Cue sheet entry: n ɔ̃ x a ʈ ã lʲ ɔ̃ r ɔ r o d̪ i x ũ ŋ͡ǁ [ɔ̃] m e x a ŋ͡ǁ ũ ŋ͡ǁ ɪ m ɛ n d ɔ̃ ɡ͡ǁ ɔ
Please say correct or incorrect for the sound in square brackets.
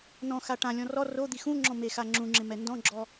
correct